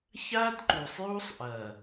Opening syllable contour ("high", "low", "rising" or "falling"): high